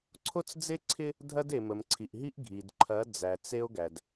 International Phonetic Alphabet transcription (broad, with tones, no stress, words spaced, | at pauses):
ǀʰo˦t͡sd͡ze˦ǀʰɪ˦ | dʱɐ˦de˨ mə˨mǀʰi˨ʔɦi˦ʔ ɡʱi˨d ǃʰɐ˨˦ d͡zæ˨t͡se˦o̯ɡæ˨d